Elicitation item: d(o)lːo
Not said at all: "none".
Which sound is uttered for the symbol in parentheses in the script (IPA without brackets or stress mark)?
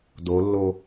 o